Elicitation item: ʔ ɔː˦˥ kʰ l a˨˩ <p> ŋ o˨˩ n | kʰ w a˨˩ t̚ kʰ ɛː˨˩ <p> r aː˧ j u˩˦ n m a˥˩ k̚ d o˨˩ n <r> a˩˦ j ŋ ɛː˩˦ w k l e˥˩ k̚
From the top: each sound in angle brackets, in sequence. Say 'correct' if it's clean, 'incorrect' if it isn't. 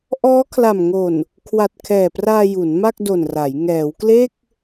incorrect: m, correct, correct

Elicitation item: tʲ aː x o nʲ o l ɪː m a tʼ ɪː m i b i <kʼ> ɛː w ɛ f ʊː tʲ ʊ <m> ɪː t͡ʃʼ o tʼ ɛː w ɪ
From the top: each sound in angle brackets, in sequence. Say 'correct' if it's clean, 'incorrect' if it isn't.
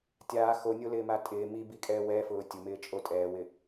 correct, correct

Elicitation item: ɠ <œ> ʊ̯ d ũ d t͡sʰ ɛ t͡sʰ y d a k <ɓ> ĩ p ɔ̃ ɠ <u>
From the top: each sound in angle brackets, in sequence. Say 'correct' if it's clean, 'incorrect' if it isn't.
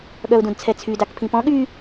correct, incorrect: pʰ, incorrect: y

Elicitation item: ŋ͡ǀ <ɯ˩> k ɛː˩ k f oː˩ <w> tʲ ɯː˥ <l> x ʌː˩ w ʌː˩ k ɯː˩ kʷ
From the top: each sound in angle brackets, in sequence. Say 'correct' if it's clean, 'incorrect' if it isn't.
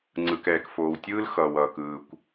correct, correct, correct

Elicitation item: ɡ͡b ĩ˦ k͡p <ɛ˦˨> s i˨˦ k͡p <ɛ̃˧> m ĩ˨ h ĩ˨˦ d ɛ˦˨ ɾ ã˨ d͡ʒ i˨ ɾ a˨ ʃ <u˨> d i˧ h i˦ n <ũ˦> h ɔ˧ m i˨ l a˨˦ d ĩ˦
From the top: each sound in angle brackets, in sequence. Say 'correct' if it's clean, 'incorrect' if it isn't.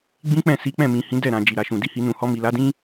incorrect: ɛ̃˦˨, incorrect: ɛ̃˦˨, incorrect: ũ˨, incorrect: ũ˧

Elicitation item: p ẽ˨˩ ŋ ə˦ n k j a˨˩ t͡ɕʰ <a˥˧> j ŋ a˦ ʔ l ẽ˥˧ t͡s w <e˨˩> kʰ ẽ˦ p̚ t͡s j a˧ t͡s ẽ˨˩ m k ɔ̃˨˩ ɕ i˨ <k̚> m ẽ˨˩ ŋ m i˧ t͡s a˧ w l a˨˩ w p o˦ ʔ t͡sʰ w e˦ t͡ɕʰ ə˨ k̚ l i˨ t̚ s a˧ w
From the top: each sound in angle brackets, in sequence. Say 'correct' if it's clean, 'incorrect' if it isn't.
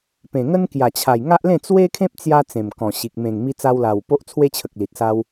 incorrect: a˨˩, incorrect: e˦, correct

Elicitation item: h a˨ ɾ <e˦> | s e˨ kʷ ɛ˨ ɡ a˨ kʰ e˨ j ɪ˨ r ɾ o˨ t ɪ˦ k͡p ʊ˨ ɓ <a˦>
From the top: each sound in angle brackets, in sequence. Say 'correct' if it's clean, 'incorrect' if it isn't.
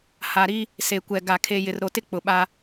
incorrect: i˦, correct

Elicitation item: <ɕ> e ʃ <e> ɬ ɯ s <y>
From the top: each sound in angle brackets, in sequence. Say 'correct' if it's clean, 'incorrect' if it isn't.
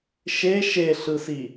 incorrect: ʃ, correct, incorrect: i

